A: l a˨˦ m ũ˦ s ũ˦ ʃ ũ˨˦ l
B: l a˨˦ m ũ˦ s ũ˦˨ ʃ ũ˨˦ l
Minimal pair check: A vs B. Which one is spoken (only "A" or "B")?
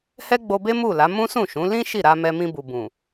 B